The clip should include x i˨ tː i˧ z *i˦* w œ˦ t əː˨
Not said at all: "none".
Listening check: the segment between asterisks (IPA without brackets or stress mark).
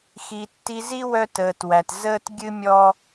i˦